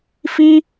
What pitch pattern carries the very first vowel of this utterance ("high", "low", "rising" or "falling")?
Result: high